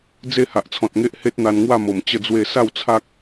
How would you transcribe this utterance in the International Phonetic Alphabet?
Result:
d͡z e˥˧ h a˨ ʔ t͡sʰ ɔ̃˨ t̚ ŋ e˦ ʔ h e˦ t̚ n̪ a˧ n ŋ w a˥˧ m o˨˩ m t͡ɕ ə˥˧ d͡z w e˥˧ s a˥˧ w t͡sʰ a˦ k̚

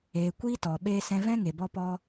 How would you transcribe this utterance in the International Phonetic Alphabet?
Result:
eː˨ kʷ iː˦ t ɔ˨ ɓ eː˦ s ɛ̃˧ v ɛ̃˦ ŋ e˨ b ɔ˦ p ɔ˦

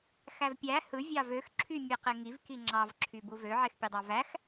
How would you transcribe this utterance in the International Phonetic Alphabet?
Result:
x æ v pʲ æ h ɯ vʲ ɑ v ø x ǁʰ y mʲ e q e ŋ i v k i ŋ͡ǁ ɑ v ǁʰ y b u v ø ʕ e x pʲ ɯ dˤ ɑ v æ x

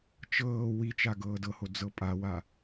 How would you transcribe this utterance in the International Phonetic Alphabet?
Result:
t͡ʃ ɤː w i t͡ʃ a ɡ ɤː d ɤ h o d͡z ɤ pʼ a w a

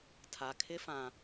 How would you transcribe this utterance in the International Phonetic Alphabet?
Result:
tʰ a˨ kʰ ɪ˦ f ã˨

